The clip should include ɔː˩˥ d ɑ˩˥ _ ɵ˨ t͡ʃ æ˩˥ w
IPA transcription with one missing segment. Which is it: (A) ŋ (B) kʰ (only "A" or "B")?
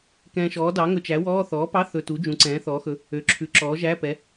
A